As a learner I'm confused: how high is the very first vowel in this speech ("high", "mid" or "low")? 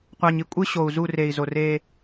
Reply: low